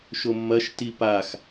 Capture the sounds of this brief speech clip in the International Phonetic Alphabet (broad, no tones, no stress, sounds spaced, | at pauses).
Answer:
ʃ o mː ɐ ʃ t i p a x